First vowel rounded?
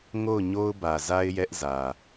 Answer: yes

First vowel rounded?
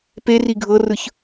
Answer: no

